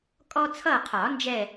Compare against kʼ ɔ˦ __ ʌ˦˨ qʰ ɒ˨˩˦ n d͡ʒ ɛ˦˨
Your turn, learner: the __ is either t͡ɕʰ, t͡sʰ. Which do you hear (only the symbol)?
t͡sʰ